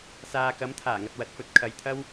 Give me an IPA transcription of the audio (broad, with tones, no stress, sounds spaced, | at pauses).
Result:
s aː˨ k ɐ˨˥ m t̪ʰ aː˨˩ ŋ ɐ˨ t̚ w ɐ˨˥ t̚ f ɵ˧ t̚ kʰ ɐ˨ j t̪ʰ ɐ˥ w